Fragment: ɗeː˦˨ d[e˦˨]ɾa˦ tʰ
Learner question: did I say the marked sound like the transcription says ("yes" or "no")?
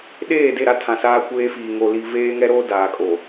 yes